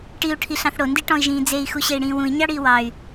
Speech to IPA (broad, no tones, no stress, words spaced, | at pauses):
ʈiu̯ ʈʰiɬɑ̃θɽo ndiʈɔ̃i̯ʒĩːd͡zei̯ xuɕei̯ɽĩːwũi̯ ɲɑɽiːwɑy̯